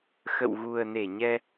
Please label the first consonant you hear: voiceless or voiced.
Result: voiceless